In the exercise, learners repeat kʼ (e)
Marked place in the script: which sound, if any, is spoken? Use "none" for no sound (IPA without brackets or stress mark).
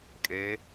e